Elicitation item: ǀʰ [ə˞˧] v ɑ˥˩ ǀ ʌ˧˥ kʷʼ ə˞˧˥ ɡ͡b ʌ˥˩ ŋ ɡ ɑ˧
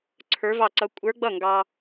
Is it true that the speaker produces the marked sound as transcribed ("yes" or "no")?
no